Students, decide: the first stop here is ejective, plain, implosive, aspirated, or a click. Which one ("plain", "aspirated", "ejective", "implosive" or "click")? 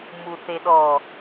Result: implosive